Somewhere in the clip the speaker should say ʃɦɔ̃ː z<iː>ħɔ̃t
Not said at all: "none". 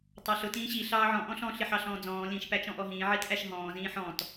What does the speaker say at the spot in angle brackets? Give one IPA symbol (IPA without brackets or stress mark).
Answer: ĩː